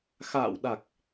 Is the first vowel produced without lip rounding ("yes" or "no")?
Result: yes